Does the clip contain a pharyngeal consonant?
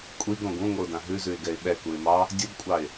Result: no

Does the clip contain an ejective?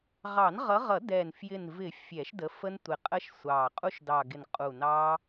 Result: yes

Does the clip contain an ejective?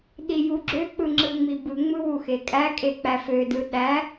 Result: yes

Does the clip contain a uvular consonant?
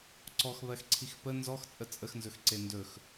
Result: no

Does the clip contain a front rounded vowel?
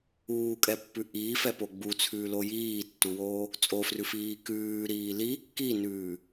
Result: no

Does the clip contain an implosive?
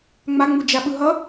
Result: yes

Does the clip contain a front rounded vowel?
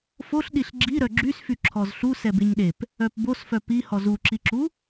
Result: yes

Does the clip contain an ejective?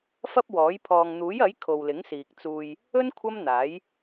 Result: no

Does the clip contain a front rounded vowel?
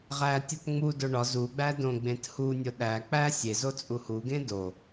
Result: no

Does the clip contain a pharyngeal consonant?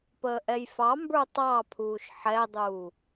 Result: yes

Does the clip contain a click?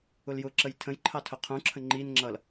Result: yes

